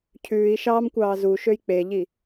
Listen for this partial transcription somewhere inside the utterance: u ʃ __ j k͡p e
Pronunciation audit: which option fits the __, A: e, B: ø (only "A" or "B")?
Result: B